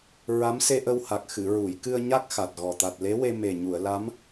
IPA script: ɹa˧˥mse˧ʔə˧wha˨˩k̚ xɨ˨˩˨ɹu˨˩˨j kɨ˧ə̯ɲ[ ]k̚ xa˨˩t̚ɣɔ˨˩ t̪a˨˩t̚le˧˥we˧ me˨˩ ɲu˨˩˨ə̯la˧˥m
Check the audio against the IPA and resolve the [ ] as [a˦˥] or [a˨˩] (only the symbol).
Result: a˦˥